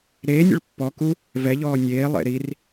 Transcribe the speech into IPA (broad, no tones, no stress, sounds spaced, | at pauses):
ɾ eː nʲ ə̰ ɭ pː ɔ k u | v ɛ ʎ ɔː nʲ eː lˠ ḛ ɾ i r